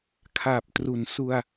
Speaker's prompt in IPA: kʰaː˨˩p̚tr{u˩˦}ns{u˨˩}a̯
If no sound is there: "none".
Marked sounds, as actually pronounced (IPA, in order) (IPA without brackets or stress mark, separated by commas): u˩˦, u˧